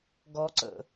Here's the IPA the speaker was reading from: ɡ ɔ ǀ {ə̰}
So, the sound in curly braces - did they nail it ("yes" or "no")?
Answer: yes